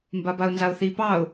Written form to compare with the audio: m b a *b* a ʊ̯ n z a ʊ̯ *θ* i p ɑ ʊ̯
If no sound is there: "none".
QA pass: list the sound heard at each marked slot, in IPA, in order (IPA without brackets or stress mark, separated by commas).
b, θ